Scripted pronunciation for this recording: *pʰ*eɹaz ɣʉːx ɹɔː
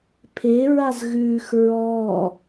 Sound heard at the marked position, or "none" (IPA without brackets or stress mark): pʰ